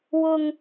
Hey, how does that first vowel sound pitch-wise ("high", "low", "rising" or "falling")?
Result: high